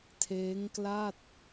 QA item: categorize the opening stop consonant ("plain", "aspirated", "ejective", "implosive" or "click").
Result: aspirated